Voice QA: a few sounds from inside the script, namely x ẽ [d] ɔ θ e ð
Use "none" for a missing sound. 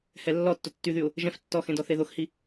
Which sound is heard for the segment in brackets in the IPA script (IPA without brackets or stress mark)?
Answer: d